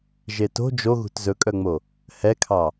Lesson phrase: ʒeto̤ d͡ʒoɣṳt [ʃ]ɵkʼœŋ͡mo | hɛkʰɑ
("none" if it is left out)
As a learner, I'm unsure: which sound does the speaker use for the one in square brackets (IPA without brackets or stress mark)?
z